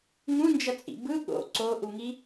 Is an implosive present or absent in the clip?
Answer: present